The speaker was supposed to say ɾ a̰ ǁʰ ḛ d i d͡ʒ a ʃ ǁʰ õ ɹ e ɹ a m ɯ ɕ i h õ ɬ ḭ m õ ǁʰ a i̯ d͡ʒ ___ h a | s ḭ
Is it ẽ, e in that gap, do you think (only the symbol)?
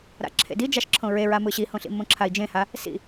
ẽ